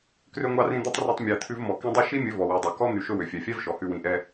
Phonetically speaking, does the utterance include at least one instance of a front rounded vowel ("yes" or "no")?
yes